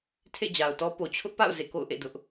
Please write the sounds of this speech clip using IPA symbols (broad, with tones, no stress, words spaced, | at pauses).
tʰḛ˦˨d͡ʑa˨ʊ̯tɔ˦po˨ t͡ɕʰʊ˦ʔpa̰˦˨ʊ̯ zḛ˦˨ko̰˦˨ʊ̯ʔḛ˦˨ dʊ˦ʔ